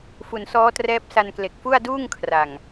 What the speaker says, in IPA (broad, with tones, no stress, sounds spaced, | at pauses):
f u˨˩ n s ɔː˦˥ t r ɛː˦˥ p̚ s a˧ n k l e˨˩ k̚ f u˥˩ a̯ d uː˥˩ ŋ kʰ r a˨˩ ŋ